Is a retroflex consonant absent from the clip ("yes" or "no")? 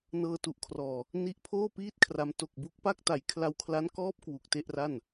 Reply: yes